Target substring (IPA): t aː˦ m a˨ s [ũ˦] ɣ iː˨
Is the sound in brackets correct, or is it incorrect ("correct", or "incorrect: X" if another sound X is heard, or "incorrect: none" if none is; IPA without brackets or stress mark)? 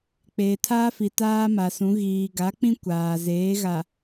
incorrect: ũ˨˦